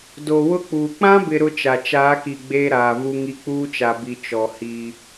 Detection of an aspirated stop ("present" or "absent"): absent